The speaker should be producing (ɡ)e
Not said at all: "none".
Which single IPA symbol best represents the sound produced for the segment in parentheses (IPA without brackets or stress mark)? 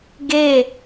ɡ